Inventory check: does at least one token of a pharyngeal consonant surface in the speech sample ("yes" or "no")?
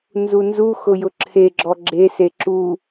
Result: no